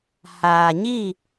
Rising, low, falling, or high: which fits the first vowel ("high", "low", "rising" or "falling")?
low